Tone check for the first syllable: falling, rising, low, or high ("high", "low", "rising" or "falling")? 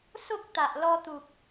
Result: high